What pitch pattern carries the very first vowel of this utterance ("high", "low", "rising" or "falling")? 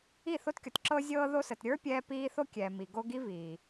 falling